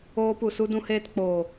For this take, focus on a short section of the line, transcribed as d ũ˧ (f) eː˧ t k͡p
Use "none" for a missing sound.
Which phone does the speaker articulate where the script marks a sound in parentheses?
h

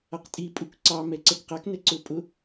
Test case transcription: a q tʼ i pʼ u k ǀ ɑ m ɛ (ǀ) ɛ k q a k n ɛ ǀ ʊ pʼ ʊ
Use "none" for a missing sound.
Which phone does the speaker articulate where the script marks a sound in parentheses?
ǀ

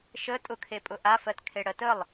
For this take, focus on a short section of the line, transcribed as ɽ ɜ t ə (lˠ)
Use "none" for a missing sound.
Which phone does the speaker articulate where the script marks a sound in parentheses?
lˠ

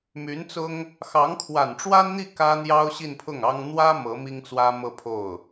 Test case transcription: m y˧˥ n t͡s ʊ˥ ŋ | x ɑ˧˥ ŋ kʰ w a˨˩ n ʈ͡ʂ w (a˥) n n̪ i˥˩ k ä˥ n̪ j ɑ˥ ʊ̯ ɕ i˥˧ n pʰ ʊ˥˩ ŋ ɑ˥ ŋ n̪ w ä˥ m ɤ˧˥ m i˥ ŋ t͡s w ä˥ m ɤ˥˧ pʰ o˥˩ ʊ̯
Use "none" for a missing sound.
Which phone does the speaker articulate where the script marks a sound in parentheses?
a˥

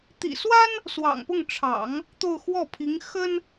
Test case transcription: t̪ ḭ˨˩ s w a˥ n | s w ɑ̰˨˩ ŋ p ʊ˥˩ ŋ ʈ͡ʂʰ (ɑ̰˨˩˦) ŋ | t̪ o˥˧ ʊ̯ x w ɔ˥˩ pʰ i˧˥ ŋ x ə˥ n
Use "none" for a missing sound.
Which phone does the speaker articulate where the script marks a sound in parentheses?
ɑ̰˨˩˦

